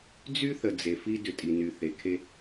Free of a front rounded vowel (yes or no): no